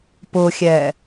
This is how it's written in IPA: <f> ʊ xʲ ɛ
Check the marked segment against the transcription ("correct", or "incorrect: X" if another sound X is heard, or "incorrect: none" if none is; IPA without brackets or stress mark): incorrect: p